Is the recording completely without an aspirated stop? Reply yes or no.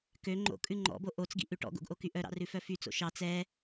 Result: yes